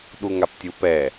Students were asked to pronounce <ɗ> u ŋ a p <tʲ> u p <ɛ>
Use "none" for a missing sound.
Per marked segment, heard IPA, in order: ɗ, tʲ, ɛ

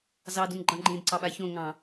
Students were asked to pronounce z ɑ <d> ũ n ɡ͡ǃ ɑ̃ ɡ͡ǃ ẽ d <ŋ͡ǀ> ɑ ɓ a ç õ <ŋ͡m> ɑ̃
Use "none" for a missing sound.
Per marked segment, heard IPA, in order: d, ǀ, ŋ

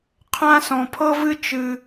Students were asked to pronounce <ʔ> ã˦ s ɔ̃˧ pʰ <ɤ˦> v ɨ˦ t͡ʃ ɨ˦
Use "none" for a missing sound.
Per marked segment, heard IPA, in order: qʰ, ɤ˦

